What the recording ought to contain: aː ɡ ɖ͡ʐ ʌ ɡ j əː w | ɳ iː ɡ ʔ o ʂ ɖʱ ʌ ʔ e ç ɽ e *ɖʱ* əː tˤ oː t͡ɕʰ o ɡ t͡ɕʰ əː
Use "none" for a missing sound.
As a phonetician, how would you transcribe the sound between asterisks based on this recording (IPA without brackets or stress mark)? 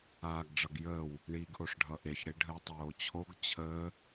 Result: ɖʱ